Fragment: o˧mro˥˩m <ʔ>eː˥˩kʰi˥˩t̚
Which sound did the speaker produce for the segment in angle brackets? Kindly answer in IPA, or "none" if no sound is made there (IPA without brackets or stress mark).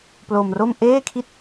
ʔ